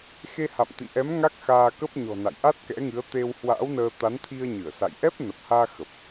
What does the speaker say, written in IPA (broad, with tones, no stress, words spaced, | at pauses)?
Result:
xe˧ha̰˧˨mt̪ḭ˧˨ʔɛ˨˦m ŋa˦˥k̚xaː˧kə˦˥p̚ɲɔ̤˨˩ na̰˧˨jʔa˦˥t̚kɛ̰˧˥ŋɨ˨˦ə̯ t̪e˧whwa̰ː˧˥wnəː˧ t̪a˨˦nt̪ʰi˧ə̯ɲɨ˧˩ə̯sa̰˧˨j ʔɛ˦˥p̚ nə˨˩p̚haː˧ xə˨˩p̚